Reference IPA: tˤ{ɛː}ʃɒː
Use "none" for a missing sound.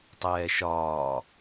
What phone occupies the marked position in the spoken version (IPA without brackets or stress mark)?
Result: ɛː